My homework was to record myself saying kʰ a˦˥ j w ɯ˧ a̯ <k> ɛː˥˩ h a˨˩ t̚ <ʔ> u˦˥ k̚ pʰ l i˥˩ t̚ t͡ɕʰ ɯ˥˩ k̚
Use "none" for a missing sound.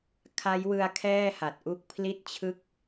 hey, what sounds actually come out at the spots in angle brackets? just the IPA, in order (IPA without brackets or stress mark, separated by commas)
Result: kʰ, ʔ